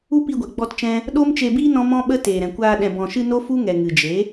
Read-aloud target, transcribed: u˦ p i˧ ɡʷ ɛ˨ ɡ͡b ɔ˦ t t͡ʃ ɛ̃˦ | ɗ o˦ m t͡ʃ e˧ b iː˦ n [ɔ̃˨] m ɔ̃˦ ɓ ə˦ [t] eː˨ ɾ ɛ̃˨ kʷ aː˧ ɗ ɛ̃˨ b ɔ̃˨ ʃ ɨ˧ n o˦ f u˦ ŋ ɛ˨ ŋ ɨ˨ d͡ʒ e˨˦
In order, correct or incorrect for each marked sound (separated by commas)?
incorrect, correct